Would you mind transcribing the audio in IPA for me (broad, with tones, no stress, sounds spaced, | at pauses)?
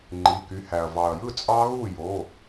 ŋ͡ǃ i˩˧˩ k y˩˧˩ h æ˩ ɐ̯ v ɑ˩ ɐ̯ j ɯ˥˩ t͡sʼ ɑ˦˥ ɣ u˥˩ j o˩˧˩